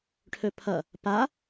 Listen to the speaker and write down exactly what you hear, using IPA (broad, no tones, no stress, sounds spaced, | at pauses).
ʈʰ ɵ pʰ ʌ | p a